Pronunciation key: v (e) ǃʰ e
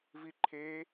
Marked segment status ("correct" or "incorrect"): incorrect